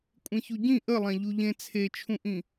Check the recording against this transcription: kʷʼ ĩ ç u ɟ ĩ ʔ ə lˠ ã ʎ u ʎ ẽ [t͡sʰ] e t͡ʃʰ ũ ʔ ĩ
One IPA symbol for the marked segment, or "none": t͡sʰ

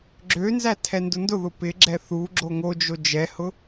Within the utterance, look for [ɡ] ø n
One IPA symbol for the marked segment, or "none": ɡ͡ǁ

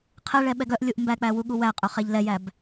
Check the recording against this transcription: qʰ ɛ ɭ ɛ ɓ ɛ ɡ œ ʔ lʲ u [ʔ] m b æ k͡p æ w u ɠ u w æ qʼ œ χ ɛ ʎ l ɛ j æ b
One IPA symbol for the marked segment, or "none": ʔ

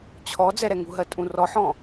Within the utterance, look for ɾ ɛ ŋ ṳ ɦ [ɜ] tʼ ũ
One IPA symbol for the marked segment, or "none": ɜ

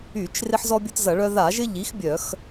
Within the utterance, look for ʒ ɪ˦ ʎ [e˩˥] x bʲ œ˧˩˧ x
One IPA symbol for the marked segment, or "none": i˩˥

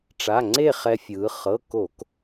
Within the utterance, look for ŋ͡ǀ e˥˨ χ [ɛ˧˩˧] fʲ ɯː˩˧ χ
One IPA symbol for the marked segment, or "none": ɛ˧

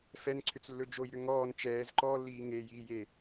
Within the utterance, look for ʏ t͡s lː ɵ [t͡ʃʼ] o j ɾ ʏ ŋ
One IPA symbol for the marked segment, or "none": d͡ʒ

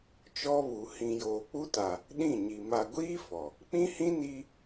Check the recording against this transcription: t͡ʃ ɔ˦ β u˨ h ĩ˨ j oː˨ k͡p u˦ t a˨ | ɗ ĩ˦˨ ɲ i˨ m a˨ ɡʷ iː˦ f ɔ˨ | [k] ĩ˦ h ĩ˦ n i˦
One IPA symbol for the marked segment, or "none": k͡p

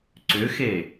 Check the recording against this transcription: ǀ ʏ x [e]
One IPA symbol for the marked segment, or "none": e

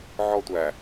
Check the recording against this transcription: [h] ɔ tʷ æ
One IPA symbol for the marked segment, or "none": ʕ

